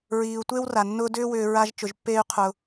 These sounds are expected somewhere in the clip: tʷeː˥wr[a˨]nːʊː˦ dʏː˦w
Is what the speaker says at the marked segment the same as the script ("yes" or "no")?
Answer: no